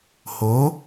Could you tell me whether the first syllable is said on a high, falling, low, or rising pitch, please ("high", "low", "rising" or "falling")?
rising